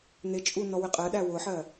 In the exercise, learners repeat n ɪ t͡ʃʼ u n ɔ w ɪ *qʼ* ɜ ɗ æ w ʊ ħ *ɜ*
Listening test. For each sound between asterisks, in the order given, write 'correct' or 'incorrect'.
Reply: correct, correct

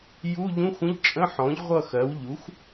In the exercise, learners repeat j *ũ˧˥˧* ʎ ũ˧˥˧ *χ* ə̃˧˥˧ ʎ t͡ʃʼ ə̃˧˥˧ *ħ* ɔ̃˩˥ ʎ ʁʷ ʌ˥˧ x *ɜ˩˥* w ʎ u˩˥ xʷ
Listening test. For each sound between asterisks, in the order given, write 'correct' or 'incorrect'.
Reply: incorrect: u˧˥˧, incorrect: xʷ, correct, correct

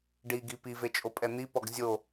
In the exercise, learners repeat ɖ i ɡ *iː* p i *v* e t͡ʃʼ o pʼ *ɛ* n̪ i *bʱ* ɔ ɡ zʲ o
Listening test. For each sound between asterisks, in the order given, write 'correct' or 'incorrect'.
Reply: incorrect: i, correct, correct, incorrect: p

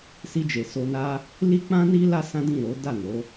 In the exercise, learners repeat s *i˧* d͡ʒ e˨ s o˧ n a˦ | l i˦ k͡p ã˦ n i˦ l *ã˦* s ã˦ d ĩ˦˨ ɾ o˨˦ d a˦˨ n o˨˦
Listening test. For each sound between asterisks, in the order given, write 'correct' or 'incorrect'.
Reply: correct, incorrect: a˦

